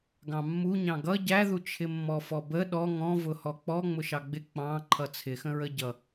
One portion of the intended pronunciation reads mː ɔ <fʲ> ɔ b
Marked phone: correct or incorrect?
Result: incorrect